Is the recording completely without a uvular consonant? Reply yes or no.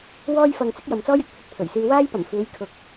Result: yes